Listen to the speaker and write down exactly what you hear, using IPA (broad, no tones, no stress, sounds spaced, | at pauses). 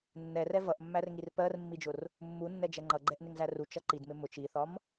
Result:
nː ɛ r ɛ v ʌ ʔ mː æ r ŋ i r p ɜ r mː i d͡ʒ ʊ r | mː u nː ɛ d͡ʒ ɛ ŋ͡ǃ ʌ ɡ͡ǃ ɛ ʔ n ɪ ŋ z æ r u t͡ʃ ʌ ǃ i d m ɪ m ʊ t͡ʃ i θ ɒ m